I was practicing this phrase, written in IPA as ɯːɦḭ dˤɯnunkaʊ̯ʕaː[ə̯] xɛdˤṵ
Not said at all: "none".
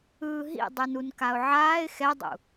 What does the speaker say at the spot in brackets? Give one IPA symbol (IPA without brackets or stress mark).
ɪ̯